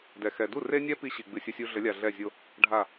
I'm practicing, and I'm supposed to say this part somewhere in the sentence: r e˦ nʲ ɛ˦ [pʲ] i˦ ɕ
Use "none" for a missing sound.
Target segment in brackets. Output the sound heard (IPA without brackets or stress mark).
p